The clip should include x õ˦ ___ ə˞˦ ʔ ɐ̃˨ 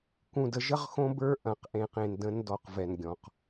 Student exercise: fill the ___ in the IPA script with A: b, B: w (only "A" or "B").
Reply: A